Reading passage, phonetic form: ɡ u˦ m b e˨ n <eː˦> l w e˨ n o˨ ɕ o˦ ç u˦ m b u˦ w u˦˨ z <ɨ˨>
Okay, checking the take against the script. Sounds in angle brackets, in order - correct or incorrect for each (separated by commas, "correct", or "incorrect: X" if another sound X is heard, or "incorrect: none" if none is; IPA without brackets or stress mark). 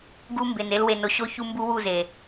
incorrect: e˦, incorrect: e˨